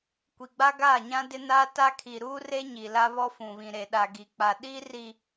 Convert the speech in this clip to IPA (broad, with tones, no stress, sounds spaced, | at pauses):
kʷ i˨ ɡ͡b a˦ ɡ aː˦˨ ɲ ã˦ d ɪ˦ n aː˦ t a˦ kʰ iː˨ ɾ uː˦ r e˦ ɲ i˨ l a˦ β ɔ˦ f ũ˨ β ĩ˨ ɾ e˨ ɗ a˨ ɡ i˨ k͡p a˨ ɗ i˦ r i˨